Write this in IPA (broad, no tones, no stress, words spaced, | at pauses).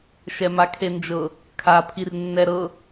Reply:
ʃɛmakʰend͡ʒɤ | kʰa pʰirnːɛɾɤ